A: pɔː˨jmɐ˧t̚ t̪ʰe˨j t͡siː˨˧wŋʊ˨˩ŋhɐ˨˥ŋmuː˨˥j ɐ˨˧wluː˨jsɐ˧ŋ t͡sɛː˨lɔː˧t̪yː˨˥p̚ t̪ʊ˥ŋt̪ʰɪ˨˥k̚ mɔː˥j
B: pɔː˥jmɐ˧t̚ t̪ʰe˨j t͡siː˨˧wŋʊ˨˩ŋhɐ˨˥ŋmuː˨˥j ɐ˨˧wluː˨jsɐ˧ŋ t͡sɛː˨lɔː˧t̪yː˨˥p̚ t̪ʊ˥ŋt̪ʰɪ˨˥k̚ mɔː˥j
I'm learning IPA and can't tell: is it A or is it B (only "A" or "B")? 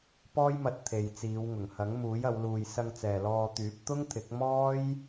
B